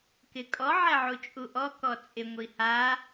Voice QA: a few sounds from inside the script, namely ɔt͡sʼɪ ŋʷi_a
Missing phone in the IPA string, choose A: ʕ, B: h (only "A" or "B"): B